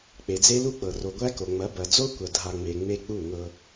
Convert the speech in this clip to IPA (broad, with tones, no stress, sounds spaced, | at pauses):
k͡p e˨ d͡z e˦ l u˦ k͡p ɤ˨ r o˨ ɡʷ æ˦ k o˨ ŋ͡m ɐ˨˦ b ɐ˨ d͡z o˦ kʷ ɐ˨ dʱ a˨ ŋ͡m e˨ ŋ͡m e˦ k͡p u˦˨ ŋ ɤ˦